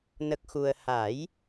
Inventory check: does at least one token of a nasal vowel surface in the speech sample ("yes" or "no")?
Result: no